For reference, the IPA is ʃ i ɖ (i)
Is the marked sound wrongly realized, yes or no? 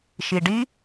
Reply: no